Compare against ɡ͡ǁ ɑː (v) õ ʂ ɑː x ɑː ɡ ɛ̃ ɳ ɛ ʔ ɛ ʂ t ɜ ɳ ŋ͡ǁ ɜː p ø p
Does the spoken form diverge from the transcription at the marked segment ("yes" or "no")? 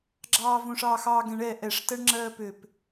no